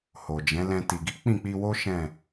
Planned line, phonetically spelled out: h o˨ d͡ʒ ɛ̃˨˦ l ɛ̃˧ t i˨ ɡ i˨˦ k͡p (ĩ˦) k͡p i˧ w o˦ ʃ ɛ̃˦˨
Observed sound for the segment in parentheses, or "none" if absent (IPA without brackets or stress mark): ĩ˦˨